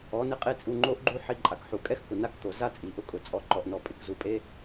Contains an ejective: yes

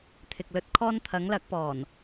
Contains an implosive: no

